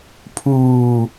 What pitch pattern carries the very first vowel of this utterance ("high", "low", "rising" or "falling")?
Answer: low